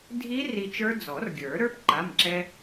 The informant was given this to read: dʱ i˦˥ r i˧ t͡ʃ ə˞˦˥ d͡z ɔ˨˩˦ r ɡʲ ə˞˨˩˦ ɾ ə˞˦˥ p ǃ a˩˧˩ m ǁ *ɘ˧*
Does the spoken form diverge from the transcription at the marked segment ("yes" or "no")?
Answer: yes